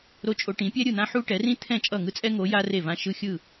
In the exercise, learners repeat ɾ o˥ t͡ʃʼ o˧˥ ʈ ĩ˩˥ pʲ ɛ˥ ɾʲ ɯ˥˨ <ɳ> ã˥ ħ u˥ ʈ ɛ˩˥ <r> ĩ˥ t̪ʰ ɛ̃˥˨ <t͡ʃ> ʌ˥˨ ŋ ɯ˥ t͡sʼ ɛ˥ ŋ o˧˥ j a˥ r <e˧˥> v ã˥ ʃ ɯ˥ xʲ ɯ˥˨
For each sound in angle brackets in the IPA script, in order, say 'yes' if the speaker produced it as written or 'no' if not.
no, yes, no, no

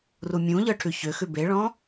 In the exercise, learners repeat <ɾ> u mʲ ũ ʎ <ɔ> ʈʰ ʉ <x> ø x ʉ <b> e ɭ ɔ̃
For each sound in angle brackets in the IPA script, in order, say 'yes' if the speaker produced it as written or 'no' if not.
no, no, no, yes

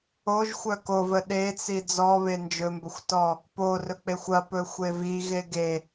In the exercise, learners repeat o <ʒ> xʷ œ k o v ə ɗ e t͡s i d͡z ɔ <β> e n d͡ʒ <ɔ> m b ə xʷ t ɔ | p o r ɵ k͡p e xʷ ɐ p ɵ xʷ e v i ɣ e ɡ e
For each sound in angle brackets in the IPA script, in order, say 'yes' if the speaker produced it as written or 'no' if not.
yes, yes, no

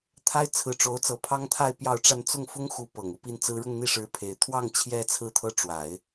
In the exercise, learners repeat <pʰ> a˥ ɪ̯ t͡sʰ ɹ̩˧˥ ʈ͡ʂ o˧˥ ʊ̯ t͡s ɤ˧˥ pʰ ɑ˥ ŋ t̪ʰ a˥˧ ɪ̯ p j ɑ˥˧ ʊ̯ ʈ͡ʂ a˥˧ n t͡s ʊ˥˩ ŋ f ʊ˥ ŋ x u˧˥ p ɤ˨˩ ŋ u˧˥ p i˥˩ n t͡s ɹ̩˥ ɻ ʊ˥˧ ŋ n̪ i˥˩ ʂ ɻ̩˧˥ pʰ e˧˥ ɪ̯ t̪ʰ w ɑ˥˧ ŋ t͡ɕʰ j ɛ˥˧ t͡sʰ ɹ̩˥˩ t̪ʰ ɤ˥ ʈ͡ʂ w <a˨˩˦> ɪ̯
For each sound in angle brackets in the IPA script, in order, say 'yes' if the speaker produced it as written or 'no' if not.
no, yes

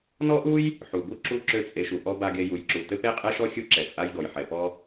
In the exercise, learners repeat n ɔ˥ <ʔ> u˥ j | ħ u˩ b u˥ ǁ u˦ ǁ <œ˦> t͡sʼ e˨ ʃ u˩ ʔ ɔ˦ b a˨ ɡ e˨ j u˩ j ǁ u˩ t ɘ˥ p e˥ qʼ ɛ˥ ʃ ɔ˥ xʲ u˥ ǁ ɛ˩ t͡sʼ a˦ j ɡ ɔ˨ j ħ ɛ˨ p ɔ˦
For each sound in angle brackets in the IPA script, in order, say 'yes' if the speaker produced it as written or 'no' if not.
yes, no

